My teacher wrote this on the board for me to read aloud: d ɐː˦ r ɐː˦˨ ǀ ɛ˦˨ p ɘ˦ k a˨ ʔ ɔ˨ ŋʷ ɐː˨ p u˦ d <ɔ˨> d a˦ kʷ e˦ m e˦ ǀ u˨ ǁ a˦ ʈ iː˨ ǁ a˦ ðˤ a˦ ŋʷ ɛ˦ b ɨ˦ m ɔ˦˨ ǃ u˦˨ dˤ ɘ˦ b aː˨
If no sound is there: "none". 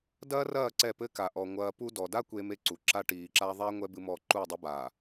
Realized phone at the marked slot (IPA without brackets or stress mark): ɔ˨